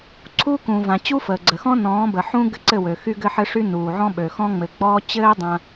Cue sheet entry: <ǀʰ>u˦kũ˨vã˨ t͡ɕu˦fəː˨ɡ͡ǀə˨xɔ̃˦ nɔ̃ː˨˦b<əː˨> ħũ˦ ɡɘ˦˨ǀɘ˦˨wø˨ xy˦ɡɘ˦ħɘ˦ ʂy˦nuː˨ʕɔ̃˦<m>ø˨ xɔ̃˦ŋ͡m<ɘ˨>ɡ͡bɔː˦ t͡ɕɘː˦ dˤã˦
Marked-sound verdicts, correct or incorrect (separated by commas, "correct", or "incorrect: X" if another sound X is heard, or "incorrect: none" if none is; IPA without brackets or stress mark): correct, incorrect: ə˨, incorrect: ɓ, correct